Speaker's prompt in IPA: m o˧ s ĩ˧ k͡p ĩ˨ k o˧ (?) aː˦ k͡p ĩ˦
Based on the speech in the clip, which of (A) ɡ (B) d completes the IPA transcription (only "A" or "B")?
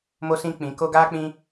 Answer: A